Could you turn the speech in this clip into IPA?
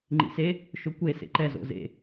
ŋ͡ǃ ḭ s e | ʃ o kʷ e s ḛ ǃ ɛ z o̰ z ḛ

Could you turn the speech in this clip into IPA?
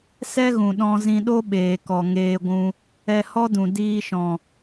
s ɛ˦ ɣ ũ˨ ɗ ɔ̃˧ z ĩ˧ ɗ o˦ ɓ eː˨ k ɔ˨ ŋ eː˧ ɡʷ ũ˧ | ɛ˧ h ɔ˦ d ũ˨ d iː˧ ʃ ɔ̃˨

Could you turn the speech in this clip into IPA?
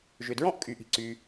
ʒ ʏ˩ d ɹ ɔ̃˥ ʔ kʼ y˩ ʔ i̤˩ ǀ y˩

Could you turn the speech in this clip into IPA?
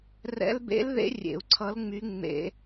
r ɛ̰˧˥ l b ḛ˧˥ l ð ḛ˧˥ rʲ ḛ˧˩˧ u̯ ǀʰ ʌ˧˥ l ŋ͡m y˧˥ ŋ͡m ḛ˧˩˧

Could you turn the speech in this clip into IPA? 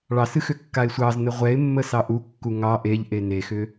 ɭ ɑ s ɨ x ʏ kː a ɪ̯ sʷ ɑ z n ə ʁʷ ɛ ɪ̯ mː ə s ɑ ʔ u kː u ŋ ɑ ʔ e ʎ ʔ e n e x ʏ

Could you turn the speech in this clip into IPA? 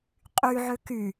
qʼ y ʕ ø k y

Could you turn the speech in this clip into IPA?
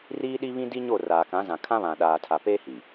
r iː˦ ɗ i˦ β ĩ˦ d i˦ ɲ o˦˨ r aː˨ k ã˨˦ z ã˨ kʰ ã˦ β ã˨ ɗ aː˨ tʰ a˨ p eː˦ h i˨

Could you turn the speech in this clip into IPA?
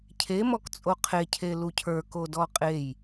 cʰ e m ɔ k t͡sʼ o qʰ e cʰ e l u cʰ ə˞ k o d ɔ qʼ e j

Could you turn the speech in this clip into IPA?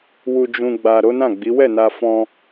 w u˨ d͡ʒ ũ˨ ɡ͡b a˨ ɾ o˨˦ n ã˦˨ ɡ͡b i˨˦ w ɛ˦˨ n a˧ f ɔ̃˧

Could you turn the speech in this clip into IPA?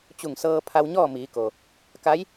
t͡ɕ u˧˩ ŋ s ɤː˧ pʰ a˧ w ɲ ɔː˥˨ m iː˩˧ k o˩ | k a˧˥ j

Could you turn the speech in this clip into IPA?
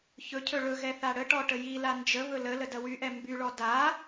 ç ɵ cʰ ɵ ɭ ɵ ɣ ɛ θ a ɽ ə ʈ ɔ ʈ ə j i l a n d͡ʒ ə β ɵ l ə l ə d ɐ w y ʔ ɛ m b y ɭ ɔ d a

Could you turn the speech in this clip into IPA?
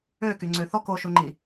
ø k y ŋ͡ǀ ø θ ɔ k o ʃ u ŋ͡ǃ i

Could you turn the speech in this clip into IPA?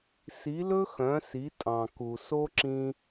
s i˧˥ l ɵ˥ x œ̃˧˥ s i˧˥ tʼ ɑ̃˧ k u˧ s o˥ ǁ ĩ˥

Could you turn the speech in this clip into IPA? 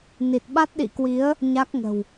n i˨˩ t̚ ɓ a˦˥ t̚ ɗ ḭ˧˨ k w i˨˦ ə̯ | ɲ a˦˥ k̚ ŋ ə̤˨˩ w

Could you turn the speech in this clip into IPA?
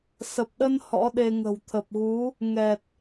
s ə˨˩ p̚ ɗ ə˧ n h ɔ̰˧˥ ɗ e˧ ŋ ə̤˨˩ w t̪ʰ ə˨˩ p̚ ɣ u˨˦ | ŋ ɛ˨˩ t̚

